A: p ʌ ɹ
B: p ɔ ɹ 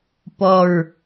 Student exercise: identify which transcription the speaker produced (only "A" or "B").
B